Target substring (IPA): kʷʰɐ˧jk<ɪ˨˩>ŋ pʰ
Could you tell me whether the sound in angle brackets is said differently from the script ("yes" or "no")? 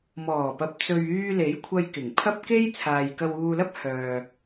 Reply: no